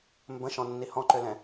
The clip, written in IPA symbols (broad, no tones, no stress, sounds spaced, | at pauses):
m b ə̃ ʃ ɔ̃ nː i h ɔ̃ ǃ ʏ l ɛ̃